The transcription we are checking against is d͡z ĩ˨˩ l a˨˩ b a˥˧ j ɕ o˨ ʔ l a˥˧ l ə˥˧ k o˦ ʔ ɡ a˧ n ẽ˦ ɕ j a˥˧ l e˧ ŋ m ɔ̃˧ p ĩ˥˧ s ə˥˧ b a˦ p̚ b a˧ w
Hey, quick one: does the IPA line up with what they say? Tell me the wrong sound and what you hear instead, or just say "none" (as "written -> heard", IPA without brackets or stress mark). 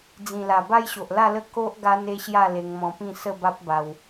ẽ˦ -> e˦